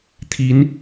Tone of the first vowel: rising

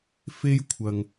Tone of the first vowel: high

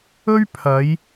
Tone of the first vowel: high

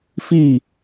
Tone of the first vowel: falling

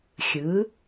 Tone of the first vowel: rising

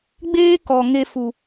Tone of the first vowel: high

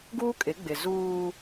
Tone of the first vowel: high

